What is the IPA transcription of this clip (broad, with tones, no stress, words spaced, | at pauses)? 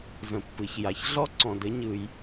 zə̃˩pːɯ˩çja˩ç ɮɔ˥ǀɔ̃˩dɘ˥ ɲɯ˩j